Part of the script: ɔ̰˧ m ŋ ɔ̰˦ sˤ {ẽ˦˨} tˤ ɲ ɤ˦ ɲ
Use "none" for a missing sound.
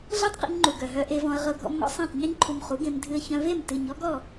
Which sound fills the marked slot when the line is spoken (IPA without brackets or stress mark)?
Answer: ẽ˦˨